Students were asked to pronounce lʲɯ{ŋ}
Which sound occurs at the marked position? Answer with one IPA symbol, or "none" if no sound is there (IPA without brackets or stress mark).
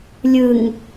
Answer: ŋ